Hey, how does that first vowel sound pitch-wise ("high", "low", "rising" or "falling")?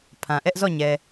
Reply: low